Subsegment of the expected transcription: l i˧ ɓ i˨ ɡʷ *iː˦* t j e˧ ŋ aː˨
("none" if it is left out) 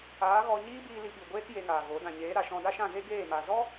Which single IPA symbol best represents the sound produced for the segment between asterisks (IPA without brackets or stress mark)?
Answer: eː˦